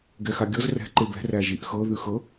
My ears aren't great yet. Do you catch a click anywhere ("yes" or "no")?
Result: yes